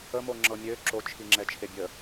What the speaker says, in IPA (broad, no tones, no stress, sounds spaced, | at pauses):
ə m o ŋ͡ǁ ɤ mʲ ø ǁ o t͡ʃʰ i ŋ͡ǁ ɛ t͡ʃʰ e bʲ ə